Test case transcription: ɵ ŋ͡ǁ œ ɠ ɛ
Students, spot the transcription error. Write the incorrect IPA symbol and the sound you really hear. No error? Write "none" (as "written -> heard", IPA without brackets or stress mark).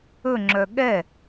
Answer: none